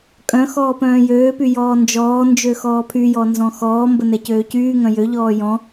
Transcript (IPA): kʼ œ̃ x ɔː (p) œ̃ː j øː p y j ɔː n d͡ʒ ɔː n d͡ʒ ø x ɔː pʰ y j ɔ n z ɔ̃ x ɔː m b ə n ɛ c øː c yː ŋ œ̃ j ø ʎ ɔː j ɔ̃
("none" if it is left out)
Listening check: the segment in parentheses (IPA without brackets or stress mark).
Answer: p